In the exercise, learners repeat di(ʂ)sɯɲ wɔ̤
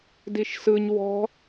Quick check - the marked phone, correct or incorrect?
incorrect